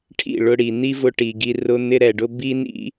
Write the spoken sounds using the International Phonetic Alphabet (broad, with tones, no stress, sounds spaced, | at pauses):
ʈʰ ḭ˦˨ ɭ ʊ˧ ɽ i˨ n̪ i˦ v ʊ˧ ʈ i˨ ɡ i˧ r ʊ˧ n̪ ɪ˦ ɾ ɛ˨ ɖ ʊ˦ b i˦ n ḭ˦